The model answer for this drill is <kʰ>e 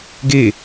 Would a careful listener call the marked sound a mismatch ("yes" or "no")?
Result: yes